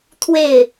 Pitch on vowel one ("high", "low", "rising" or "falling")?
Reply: falling